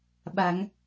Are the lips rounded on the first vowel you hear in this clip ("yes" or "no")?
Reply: no